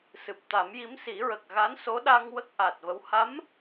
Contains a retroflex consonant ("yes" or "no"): no